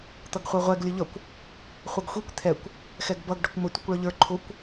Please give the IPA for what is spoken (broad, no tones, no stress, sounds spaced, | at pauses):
t̪ ʌ ɡ χʷ ɛ ʁʷ ɛ ɡ lʲ ə ʎ ʌ kʷ | χʷ ʌ ɡ xʷ i kʷ t̪ʰ ɛ kʷ | x ɛ ɡ b ʌ ɡ ɖ ʌ kʷ m ə tʷ i kʷ ɭ ʌ ʎ ə˞ ǃʰ ʊ kʷ